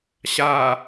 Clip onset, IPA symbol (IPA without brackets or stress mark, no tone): ɕ